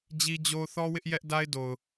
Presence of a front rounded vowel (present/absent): absent